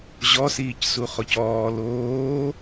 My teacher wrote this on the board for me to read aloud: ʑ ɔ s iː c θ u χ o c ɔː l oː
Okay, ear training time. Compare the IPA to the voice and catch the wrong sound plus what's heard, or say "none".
θ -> s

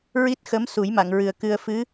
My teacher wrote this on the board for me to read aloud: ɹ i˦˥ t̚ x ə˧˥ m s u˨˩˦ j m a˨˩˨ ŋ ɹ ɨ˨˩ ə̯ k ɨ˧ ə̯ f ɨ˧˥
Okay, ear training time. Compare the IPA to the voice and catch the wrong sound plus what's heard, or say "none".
none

